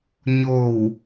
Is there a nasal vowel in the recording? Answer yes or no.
no